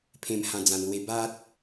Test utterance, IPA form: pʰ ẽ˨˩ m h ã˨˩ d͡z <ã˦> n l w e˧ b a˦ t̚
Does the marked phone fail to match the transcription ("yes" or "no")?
yes